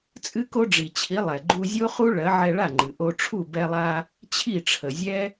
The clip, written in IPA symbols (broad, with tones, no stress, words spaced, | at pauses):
t͡sʼɨ˥ko˥ɖ͡ʐi˩t͡ɕʰi˩˥ lˠɛ˩ ɡ͡ǃu˧zʲo˥χu˥ ɭɜ˩˥ ʕɛ˧ɭa˥˩ŋ͡ǃɨ˩ ʔo˧ʈ͡ʂʰu˥˩ bɛ˧lˠa˧ | t͡ɕʰi˥˩ʈ͡ʂʰə˩zʲɛ˥